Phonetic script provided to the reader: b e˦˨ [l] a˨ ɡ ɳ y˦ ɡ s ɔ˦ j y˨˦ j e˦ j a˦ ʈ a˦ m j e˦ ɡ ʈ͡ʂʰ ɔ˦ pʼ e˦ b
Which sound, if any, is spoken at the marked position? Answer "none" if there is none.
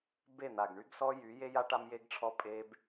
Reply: n̪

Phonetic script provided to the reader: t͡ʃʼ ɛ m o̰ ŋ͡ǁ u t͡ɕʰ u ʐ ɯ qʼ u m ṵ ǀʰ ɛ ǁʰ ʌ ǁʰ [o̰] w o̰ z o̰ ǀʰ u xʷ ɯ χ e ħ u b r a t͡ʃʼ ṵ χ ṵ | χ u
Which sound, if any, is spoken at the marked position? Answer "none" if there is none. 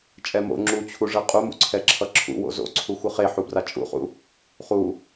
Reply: ṵ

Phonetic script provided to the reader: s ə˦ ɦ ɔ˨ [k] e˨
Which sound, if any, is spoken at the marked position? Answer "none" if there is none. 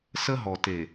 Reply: t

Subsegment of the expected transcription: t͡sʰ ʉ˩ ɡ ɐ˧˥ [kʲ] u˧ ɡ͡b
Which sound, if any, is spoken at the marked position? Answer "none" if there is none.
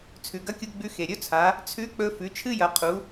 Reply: kʲ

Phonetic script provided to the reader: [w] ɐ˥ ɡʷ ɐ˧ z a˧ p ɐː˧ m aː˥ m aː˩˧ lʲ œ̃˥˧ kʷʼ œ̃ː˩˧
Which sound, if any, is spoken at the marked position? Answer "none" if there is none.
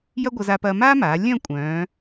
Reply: j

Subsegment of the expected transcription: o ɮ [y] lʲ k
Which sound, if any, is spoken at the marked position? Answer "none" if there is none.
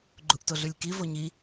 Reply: y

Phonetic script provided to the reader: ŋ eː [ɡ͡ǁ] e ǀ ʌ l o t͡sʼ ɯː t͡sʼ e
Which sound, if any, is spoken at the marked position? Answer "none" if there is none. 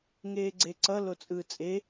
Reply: ɡ͡ǀ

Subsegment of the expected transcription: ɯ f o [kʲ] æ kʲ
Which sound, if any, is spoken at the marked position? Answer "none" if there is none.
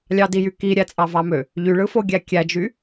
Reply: ɡʲ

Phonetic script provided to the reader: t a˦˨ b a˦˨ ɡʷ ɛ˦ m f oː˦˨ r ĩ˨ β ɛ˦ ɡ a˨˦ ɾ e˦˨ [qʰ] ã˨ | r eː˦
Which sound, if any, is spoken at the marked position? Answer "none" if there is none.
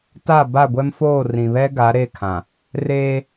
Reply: kʰ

